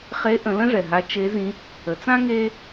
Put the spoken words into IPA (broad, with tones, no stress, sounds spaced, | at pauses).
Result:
χ e˧˥ ʔ ə̃˩˧ l ə̃˥ ʐ ɛ˩ ɦ a˧˥ t͡ʃ e˧˥ z ĩ˧˥ | ə˩˧ t͡s ã˥ ŋ e˥